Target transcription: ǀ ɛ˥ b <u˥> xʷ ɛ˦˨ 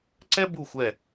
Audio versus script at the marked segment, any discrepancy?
yes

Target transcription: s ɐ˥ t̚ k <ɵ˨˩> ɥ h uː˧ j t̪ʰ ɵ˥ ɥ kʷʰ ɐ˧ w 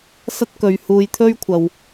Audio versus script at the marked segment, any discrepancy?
yes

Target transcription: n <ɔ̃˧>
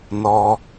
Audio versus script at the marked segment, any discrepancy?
yes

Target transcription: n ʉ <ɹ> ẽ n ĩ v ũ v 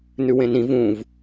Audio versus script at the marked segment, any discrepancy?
yes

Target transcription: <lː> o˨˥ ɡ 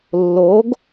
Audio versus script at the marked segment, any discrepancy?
no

